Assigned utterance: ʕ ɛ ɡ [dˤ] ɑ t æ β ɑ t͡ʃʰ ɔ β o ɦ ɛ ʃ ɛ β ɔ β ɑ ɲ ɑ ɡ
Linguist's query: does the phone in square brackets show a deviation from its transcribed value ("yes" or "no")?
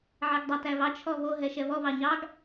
no